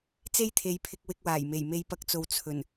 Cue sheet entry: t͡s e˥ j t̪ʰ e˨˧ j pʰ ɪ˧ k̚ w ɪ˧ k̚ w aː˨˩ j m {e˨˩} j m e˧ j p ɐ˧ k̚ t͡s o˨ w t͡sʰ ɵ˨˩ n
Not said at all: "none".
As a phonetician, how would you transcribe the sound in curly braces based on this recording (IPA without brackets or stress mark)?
e˨˩